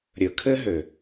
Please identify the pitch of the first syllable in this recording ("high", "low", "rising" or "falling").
low